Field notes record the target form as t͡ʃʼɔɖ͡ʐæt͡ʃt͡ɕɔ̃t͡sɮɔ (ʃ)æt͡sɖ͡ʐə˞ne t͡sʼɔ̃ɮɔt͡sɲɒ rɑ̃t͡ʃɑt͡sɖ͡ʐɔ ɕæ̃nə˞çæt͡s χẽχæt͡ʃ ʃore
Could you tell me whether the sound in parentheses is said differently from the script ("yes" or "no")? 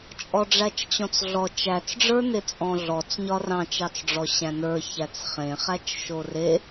yes